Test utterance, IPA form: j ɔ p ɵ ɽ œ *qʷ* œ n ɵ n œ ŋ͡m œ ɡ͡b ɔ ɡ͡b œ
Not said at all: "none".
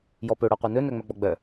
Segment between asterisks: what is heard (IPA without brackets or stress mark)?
qʷ